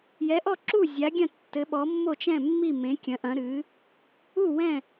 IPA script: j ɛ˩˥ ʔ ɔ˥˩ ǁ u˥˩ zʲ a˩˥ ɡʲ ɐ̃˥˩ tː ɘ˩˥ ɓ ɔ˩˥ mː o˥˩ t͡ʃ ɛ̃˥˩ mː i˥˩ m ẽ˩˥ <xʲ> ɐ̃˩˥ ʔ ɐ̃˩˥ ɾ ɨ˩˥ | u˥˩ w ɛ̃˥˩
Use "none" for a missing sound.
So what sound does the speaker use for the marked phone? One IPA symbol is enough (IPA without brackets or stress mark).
kʲ